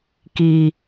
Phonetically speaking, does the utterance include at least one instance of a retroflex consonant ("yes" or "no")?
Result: no